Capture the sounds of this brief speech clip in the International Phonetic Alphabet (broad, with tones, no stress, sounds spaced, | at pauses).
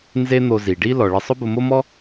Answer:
n z e˥ n̪ o˧ z i˩ ɖ i˥ l ɔ˩ ɭ ɪ˧ sˤ ʊ˥ b ʊ˧ m o˥ m ɔ˥